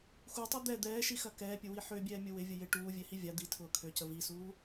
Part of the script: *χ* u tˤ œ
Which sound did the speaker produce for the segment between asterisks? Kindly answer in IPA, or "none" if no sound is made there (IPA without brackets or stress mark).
x